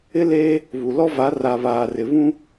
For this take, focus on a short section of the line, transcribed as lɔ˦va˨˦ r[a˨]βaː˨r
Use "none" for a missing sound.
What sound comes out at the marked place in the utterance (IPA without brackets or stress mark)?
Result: a˨